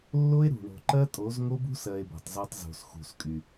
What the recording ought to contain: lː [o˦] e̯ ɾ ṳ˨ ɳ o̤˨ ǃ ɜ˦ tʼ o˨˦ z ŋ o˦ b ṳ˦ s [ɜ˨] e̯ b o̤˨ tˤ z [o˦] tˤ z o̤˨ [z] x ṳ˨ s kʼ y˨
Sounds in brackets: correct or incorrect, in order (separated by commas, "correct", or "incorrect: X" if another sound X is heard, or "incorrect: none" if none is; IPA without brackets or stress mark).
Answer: correct, correct, correct, incorrect: s